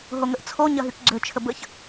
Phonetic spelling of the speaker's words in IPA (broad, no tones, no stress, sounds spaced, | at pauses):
ɦ o ŋ ə ʔ t͡sʰ o ɲ ɐ ɦ y k ɡ͡ǀ ø t͡ʃʰ ə b ə ç